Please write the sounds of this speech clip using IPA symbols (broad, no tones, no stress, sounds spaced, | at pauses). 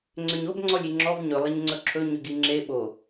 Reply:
ŋ͡ǀ ʏ ɲ o b ŋ͡ǀ ɔ lʲ i ŋ͡ǁ ɔ v ɲ ɵ lˠ ɪ ɲ ŋ͡ǀ ɵ ǁʰ ɵ ɲ ʏ ɡ i ŋ͡ǁ e ɓ o